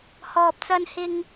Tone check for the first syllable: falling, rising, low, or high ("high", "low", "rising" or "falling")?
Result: low